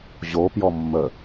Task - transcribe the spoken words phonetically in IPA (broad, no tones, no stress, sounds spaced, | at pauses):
ʑ o p j ɔ mː ə